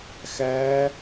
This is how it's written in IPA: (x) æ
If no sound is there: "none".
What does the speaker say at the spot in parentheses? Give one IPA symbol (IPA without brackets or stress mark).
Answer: x